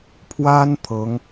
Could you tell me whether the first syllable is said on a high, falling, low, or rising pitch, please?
high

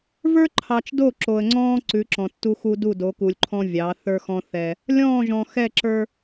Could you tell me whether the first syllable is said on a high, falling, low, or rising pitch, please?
high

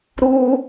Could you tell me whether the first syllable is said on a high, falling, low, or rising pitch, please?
high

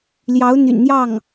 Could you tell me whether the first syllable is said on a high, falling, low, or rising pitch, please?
rising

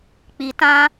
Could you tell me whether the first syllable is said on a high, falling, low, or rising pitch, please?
low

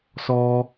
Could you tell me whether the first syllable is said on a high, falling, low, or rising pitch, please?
high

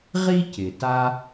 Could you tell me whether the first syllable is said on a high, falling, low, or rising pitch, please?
high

